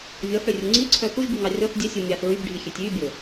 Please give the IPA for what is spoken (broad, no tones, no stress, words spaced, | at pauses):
vʲɔθɽørʲu ŋ͡ǀiǀʰœ θuʒbyŋɑ rʲɔθ dʲɛsʲu mʲɑθ ɹybɖʱixʲøtʲ ybʲɵ